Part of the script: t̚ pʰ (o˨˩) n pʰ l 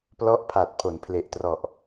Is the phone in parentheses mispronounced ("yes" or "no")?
yes